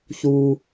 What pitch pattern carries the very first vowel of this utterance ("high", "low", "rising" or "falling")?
low